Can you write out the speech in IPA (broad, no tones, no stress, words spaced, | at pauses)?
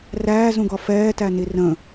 ræːzũɡɒ fɛːtæni rə̃